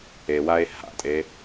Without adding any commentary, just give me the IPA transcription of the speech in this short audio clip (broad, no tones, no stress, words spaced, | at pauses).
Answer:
ewae̯ ha̰tʼe